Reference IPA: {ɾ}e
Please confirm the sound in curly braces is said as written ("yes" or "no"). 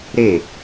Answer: yes